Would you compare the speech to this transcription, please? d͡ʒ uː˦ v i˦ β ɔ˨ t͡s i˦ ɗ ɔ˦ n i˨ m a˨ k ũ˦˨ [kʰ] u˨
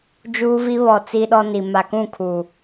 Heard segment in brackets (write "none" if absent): kʰ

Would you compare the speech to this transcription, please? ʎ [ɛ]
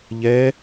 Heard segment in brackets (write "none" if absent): ɛ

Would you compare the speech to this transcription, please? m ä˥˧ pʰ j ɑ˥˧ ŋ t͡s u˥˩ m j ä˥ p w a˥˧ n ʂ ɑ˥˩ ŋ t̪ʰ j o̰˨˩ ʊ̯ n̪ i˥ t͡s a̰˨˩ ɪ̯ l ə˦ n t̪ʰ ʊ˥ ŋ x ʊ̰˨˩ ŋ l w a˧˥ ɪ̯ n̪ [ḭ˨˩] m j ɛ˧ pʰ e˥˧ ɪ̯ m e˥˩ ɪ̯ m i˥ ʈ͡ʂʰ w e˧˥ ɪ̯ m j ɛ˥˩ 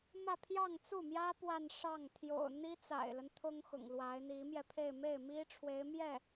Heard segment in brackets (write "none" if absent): i˧˥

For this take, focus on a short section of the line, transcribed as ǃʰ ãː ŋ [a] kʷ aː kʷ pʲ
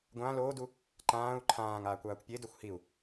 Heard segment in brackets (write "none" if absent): aː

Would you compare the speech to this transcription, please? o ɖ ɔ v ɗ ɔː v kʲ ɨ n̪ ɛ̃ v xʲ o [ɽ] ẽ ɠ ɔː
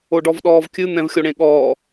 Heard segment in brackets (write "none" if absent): ɽ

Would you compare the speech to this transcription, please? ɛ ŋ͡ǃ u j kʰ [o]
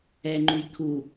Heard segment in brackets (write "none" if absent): u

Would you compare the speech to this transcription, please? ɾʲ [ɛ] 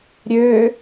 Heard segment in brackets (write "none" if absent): ø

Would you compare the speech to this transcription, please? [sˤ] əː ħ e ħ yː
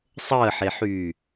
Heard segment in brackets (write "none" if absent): sˤ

